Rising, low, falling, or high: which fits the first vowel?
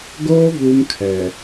high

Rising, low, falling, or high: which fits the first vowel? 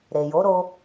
low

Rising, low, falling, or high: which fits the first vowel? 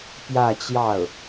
falling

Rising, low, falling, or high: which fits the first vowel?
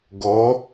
rising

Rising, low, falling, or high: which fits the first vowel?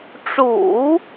low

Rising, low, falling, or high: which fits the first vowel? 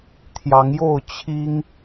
rising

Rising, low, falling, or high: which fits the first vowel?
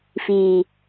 low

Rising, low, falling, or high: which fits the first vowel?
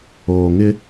low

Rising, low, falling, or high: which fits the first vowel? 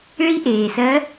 rising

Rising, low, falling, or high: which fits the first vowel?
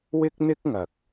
high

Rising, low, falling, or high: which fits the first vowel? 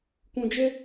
low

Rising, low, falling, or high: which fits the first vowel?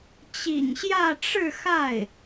low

